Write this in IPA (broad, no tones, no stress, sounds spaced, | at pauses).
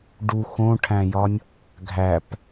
ɖ u x õ ʈʰ æ̃ j ɒ nʲ | ɡʱ æ p